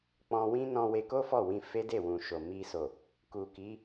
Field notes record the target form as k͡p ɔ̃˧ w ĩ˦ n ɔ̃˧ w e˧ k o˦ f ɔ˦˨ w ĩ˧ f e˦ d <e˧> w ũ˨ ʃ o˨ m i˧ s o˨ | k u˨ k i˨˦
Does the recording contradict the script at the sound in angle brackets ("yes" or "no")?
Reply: yes